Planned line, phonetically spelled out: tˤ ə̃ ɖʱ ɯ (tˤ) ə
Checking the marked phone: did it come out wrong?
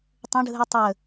no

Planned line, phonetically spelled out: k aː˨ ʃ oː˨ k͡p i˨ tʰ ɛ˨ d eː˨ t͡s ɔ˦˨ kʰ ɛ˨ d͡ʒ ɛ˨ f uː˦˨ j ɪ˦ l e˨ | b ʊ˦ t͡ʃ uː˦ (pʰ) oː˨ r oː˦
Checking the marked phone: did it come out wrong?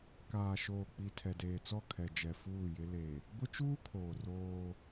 yes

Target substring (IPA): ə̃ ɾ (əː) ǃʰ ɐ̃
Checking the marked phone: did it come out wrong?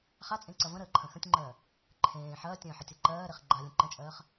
no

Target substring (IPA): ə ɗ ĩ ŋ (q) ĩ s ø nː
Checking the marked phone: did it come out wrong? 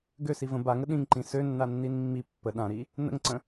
yes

